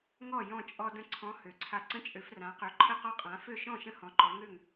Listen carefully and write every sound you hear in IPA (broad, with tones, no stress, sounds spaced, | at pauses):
ŋ ɔ˥˨ j ɔ̃˥˨ t͡ʃʼ ɔ˦ d ə̃˦ ǀʰ ɔ̃˨˦ h ø˨˦ ǀʰ a˦ ǀ ə̃˦ t͡ʃʼ ø˨˦ f r ã˨˦ q ø˨˦ ǃʰ ə˦ q ɔ˦ qʼ ã˨˦ f ø˥˨ ʃ ɔ̃˥˨ ʃ ə̃˦ h ɔ̃˨˦ ǃ ɔ˨˦ ŋ ø˥˨ ŋ